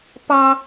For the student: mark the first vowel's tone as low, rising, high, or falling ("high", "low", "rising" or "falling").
high